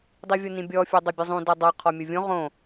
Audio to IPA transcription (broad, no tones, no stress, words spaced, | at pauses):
dˤivʲonĩbʲɔ fʲudˤobʲɯzˤũ dɯdˤɤ qʰɔmʲuvʲõ ʁõ